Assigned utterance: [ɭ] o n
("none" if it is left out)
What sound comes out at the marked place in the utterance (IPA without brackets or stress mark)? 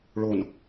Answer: ɭ